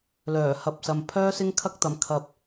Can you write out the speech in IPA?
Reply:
lœː˨˩hɐ˨p̚sɐ˨m pʰœː˥sɪ˥ŋkʰɐ˥k̚t̪ɐ˨˧m kʰɐ˨p̚

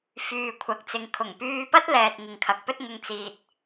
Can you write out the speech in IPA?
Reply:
fyː˨ kʷʰɐ˨k̚t͡sɪ˨˧ŋkʰʊ˨˩ŋ pyː˧pɐ˥t̚lɛː˨t̚ ŋɪ˨ŋkʰɐ˨k̚pɵ˥t̚ŋʊ˧ŋ t͡siː˨t̚

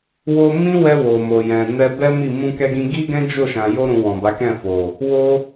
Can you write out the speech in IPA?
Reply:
wo˦ mĩ˦wɛ˧ wo˨mo˨jɛ̃˨ nɛ˧bɛ˦mi˦˨ mũ˧kɛ˧ɡĩ˧ ɡi˦ ɡɛ̃˦d͡ʒo˦˨ʃã˨ jo˧ɾũ˨ wɔ̃˨ba˨˦kɛ̃˦˨fo˨ | wo˧

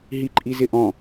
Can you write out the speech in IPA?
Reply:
ɦiǃʼizɪʔɔ̃

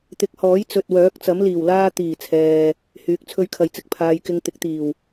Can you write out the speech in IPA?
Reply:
t̪ɪ˨˥k̚hɔː˨˥j t͡sɵ˨t̚wœː˨˥k̚t͡sɐ˨˥m liː˨˩wlaː˥ t̪iː˨˩t͡sʰɛː˨ | hyː˨˥k̚t͡sʰɵ˥ɥkʰɐ˧jt͡sɪ˧k̚ pʰaː˨jkɪ˧ŋ t̪ɪ˨˥k̚t̪iː˨˩w

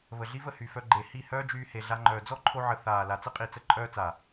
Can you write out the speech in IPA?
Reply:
βə˨ɮi˦və˦˨ hy˨ fœ˧ ɡ͡ǃe˨ hi˦˨hœː˦d͡ʒyː˧ he˨ɮa˧ŋ͡ǃœː˨ d͡zɔ˦ǃʰo˧ʕə˨ θaː˨ la˨t͡sə˦qʼi˨t͡sə˧ ǃʼœː˧t͡sa˨

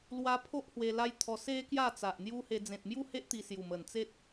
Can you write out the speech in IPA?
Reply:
lwa˧pʰo˦ʔ hwe˧la˦jt̪ʰɔ˧ se˧ kja˥˧t͡sa˨ʔn̪ju˦he˧ d͡zẽ˨t̚mju˥˧he˦ʔ t̪i˧sju˨˩mə˨˩nt͡se˦t̚

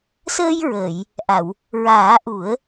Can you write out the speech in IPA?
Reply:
səː˧jɹəː˨˩˨j | ʔa˨˩˨w | ɹaː˨˩˦ʔu˨˩˦ə̯

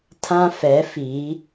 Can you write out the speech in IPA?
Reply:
tʰã˦fɛ˨˦fi˨˦

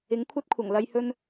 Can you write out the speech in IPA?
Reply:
ɪ˨˥ŋkʷʰɐ˥t̚ kʷʰɐ˨˩ŋlɐ˧j hɵ˥n

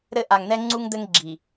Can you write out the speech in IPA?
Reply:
ɾɘ˦ ʔa˨ŋn̪ɛ˦ŋ͡ǀu˦ŋ d̪ɘ˦ŋɡ͡ǁi˨

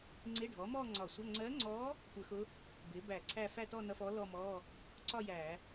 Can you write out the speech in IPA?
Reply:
ŋ͡ǀɪ˧˥˧ɖʱɔ˩˥ mɔː˥˧ŋ͡ǀɒ˧˩˧sʷʌ˧˥˧ ŋ͡ǀɜ˧˥ŋ͡ǀɔː˧˥ | tʷə˧˩˧xʊ˧˥ | bɪː˩˥bæ˧˩˧ ǀʰæ˥˧ fæ˥˧tɔː˥˧nʌ˧˥˧fɔː˧˥ lɔː˥˧mɔː˧˥˧ | ǀɒ˥˧jæː˧˩˧

